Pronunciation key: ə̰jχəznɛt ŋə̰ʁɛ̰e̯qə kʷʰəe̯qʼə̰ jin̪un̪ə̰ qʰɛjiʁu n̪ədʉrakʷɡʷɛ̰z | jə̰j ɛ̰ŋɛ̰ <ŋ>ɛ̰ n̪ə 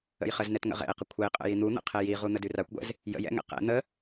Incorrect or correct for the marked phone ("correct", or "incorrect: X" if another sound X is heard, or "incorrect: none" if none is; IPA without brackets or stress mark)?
incorrect: q